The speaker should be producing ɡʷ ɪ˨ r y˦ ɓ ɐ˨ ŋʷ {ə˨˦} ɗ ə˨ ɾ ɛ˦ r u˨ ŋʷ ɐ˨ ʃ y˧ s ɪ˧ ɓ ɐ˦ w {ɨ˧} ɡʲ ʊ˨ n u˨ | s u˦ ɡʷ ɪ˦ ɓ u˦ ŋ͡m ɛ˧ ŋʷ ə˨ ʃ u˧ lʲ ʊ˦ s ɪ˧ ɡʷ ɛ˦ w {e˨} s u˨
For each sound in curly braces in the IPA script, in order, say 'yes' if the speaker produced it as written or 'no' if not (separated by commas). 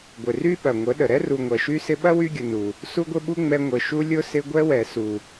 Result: yes, no, no